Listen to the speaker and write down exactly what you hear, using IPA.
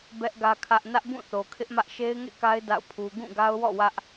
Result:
b ɛ˦ ʔ ɡ ä˦ kʰ ä˦ ʔ n ä˦ ʔ b ũ˦˨ θ o˨ kʰ ɪ˦ ʔ m ä˦ ʔ ʃ e˦ ɪ̯ ŋ ḛ˦˨ k a˦ ɪ̯ d a̰˦˨ ʊ̯ pʰ u˦ ɡ ũ˦˨ ɡ a˦ ʊ̯ w ɔ̰˦˨ w ä˦ ʔ

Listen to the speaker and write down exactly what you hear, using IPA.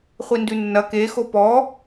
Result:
χʷ i n d ʉ nː ɐ k e x o p ɔ

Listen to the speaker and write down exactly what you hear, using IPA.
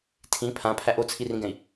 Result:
tʰ ĩ pʰ ã pʰ æ ʔ o t͡sʰ i r ĩ ɡ ɛ̃ i̯

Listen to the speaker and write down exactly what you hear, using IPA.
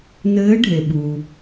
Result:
n ɘː˧˥ ɖʱ e˩ ɓ uː˩

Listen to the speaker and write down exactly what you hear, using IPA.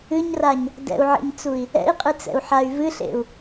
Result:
ɨ ɲ r a ɲ | d ɛ̰ u̯ ʕ ḛ ɲ t͡s u i̯ | ɛ̰ i̯ qʼ ɨ t͡s ɛ̰ u̯ ħ a y̯ v ɨ ɬ ḛ u̯

